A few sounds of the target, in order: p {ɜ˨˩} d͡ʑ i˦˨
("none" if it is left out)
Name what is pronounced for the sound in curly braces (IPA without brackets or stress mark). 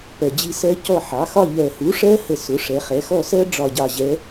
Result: ɜ˨˩